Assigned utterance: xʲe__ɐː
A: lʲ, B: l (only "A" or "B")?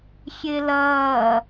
B